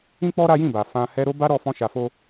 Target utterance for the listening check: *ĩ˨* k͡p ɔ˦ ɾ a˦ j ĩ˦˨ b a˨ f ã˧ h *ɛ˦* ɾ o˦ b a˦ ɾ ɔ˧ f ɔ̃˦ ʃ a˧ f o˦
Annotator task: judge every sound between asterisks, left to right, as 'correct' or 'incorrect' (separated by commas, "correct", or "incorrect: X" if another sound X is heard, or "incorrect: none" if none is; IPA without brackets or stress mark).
incorrect: ĩ˦, correct